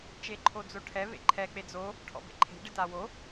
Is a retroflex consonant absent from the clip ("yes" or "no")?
no